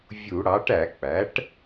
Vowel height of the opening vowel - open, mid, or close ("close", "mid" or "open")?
close